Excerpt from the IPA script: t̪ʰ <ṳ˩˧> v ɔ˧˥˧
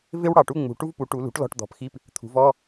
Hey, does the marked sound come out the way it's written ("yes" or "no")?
yes